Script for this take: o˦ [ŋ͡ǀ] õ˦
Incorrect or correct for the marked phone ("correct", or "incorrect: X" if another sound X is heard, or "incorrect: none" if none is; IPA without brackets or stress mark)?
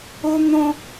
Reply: incorrect: n̪